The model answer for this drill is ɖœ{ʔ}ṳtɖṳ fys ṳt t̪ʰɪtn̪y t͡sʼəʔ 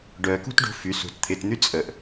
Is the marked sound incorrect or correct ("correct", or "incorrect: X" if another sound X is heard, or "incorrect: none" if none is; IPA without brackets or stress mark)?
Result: incorrect: k